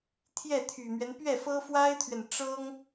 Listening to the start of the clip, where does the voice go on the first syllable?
falling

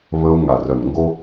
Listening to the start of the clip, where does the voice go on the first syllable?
high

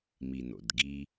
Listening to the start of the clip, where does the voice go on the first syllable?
low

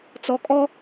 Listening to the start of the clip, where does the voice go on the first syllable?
low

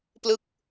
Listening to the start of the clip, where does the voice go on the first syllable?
falling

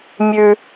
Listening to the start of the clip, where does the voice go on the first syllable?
low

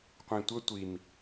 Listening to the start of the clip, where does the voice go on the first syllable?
low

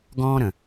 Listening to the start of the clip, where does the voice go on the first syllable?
high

